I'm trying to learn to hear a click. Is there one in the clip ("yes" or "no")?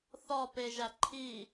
yes